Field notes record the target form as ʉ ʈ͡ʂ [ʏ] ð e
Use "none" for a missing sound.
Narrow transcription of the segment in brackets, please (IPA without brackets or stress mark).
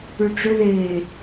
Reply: ʏ